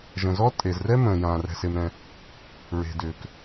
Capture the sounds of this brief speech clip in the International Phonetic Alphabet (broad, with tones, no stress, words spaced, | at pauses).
ʒə̃˩zɔ˥ tʼe˩zrɛ˥ mə̃ː˩jãː˩ rɛ̤˩se˩mɾɛ̃˩ | ɹe̤˩dʏː˩k